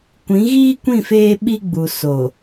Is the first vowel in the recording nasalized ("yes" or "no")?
yes